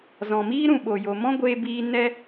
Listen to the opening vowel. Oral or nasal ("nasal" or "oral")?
nasal